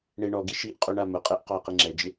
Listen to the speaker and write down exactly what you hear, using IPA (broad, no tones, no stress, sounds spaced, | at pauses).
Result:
ɳ e ɳ ɔ ɡ i ʃ i ʔ qʼ u ɳ a m ʊ qʼ e ʔ q ɔ ɪ̯ q i ŋ͡ǁ ɛ d͡ʒ ɪ